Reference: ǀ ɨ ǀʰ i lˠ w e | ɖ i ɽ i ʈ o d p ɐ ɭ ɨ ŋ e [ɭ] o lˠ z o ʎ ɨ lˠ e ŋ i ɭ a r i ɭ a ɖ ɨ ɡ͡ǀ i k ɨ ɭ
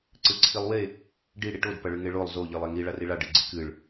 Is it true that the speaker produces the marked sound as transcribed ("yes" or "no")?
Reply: yes